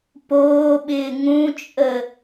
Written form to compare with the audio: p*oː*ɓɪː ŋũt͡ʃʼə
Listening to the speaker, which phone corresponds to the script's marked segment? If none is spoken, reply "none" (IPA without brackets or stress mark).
oː